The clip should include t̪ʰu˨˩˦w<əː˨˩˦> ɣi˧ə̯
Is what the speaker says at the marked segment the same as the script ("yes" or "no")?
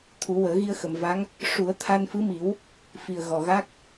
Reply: yes